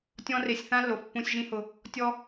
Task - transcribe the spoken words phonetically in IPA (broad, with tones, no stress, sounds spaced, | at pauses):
tʲ ɔ̃˦ r e˧ sʲ θ ã˦ lː o˨ f pː ũ˧ sʲ ʒ ĩ˦ h ʊ˧ | tʲ ɔ˦